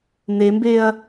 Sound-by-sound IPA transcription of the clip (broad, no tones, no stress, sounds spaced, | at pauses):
n e m b e ɐ̯